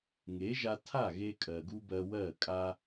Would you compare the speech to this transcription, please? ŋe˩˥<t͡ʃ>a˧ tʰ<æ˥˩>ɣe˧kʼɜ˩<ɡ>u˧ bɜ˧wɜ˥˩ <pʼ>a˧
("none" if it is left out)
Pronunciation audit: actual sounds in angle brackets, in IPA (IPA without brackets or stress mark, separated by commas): ʒ, a˥˩, ɡ, kʼ